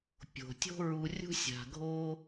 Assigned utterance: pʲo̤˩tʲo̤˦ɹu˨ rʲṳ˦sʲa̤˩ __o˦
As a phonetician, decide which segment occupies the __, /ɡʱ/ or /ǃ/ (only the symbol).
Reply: ɡʱ